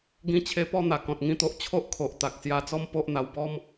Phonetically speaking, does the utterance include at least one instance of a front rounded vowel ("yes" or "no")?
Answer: no